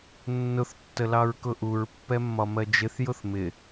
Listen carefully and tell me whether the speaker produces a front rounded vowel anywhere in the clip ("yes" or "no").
no